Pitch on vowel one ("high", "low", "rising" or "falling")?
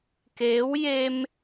rising